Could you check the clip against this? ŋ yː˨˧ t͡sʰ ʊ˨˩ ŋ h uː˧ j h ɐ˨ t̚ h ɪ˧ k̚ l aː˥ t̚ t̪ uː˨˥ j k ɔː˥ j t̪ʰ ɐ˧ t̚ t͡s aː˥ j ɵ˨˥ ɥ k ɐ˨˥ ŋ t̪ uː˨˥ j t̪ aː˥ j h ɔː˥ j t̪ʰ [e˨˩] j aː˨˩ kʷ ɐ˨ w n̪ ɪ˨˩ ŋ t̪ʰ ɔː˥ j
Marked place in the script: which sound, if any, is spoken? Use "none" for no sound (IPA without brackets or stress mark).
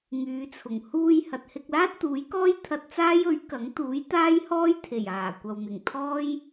e˨˩